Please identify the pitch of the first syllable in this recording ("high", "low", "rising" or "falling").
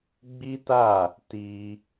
high